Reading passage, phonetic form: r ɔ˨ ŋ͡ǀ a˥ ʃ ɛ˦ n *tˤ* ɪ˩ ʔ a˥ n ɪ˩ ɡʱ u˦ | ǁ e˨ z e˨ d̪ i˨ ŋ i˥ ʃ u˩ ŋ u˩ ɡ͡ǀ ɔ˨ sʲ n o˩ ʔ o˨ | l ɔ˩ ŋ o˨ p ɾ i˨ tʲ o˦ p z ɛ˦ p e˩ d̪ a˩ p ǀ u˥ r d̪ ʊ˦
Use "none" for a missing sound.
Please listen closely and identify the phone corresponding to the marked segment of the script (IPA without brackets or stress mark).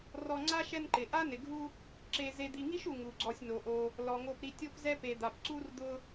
ǃ